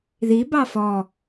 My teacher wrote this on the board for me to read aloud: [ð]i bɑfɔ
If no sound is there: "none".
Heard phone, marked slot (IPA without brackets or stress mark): ð